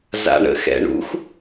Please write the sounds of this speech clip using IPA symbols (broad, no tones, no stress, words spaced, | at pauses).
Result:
za̰ɳə̰ xɛ̰ɳṵx